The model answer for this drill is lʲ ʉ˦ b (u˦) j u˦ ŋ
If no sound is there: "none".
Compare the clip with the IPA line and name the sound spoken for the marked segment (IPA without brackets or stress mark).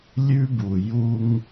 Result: u˨